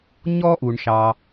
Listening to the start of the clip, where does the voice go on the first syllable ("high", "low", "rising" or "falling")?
high